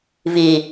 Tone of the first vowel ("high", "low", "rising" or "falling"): low